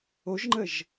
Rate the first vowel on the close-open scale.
mid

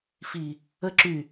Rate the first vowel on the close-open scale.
close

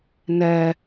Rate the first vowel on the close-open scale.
mid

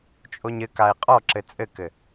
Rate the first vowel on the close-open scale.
mid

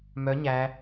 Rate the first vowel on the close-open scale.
mid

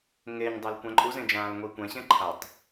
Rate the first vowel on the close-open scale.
mid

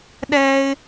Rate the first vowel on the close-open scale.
mid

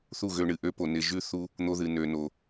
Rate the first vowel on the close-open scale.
close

